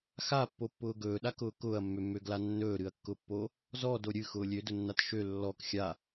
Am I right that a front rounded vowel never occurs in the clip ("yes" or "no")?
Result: no